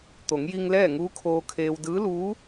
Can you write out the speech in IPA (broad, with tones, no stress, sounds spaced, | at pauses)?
t̪ o˩˧ ŋ j i˧ ŋ l ɛː˥˨ ŋ uː˧˥ kʰ oː˧ kʰ eː˧ w d ɯː˧˥ l uː˧˥